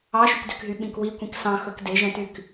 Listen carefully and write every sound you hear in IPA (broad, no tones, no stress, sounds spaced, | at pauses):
ɑ ʃ ʉ k d ø k ɦ y ɓ ĩ k w i kʷ ĩ k s ɑ̃ x ɵ k d e ʒ ɛ̃ t y k